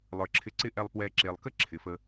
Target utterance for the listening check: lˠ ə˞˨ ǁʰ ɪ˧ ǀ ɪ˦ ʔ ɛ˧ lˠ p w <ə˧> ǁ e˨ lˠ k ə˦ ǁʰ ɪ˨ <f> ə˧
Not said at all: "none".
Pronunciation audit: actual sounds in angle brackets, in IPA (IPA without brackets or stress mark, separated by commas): ɛ˧, f